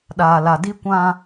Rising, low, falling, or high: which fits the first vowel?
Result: low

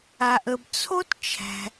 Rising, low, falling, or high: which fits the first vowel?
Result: low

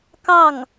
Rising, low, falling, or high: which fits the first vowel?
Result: falling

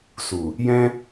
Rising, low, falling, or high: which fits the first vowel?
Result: low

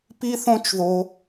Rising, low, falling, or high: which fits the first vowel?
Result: high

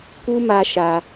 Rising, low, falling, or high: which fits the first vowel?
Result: high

